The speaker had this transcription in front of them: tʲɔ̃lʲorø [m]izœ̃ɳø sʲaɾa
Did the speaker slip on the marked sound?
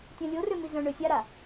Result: no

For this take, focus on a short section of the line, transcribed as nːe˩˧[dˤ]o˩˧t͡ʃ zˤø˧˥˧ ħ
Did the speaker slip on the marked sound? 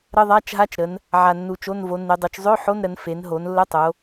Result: no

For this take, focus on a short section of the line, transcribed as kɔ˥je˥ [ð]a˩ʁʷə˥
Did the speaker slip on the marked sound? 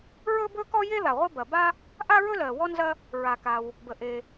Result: no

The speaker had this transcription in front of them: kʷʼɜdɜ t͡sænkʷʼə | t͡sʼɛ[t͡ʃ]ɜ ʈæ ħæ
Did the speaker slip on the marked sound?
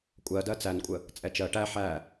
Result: no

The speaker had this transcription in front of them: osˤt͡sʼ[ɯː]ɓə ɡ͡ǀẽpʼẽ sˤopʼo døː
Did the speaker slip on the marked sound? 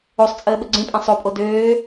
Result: yes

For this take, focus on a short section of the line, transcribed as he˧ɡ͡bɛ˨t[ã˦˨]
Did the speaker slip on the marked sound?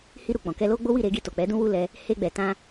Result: yes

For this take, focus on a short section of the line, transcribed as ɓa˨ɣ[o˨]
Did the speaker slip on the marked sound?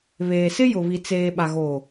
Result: yes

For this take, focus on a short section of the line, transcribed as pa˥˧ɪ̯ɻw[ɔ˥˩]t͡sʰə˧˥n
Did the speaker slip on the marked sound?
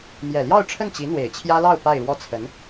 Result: no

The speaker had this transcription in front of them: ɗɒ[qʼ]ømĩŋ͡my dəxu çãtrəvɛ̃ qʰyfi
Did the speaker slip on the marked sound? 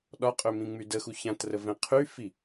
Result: no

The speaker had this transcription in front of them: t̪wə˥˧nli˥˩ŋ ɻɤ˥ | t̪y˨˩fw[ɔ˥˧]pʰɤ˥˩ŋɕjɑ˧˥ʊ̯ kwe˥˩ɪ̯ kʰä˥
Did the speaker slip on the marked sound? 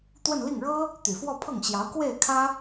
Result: no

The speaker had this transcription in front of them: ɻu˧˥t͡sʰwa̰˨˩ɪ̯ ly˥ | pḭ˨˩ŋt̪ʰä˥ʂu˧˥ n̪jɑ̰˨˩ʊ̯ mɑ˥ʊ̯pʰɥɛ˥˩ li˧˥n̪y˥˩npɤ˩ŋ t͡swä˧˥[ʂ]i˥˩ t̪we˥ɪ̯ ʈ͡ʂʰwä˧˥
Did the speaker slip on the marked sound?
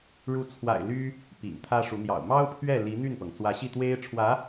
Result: yes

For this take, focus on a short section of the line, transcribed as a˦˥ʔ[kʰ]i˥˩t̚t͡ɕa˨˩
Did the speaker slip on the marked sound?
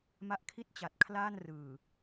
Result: no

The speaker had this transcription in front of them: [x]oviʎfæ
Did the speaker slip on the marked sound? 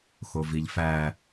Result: no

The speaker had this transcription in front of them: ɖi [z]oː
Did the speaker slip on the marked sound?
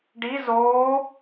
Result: no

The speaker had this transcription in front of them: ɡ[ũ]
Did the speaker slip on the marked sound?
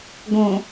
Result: yes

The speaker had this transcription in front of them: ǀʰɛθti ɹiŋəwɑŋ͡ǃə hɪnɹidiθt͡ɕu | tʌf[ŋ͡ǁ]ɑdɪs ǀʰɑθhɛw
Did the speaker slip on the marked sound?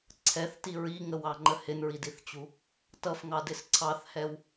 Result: yes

